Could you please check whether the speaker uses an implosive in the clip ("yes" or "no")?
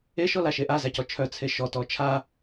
no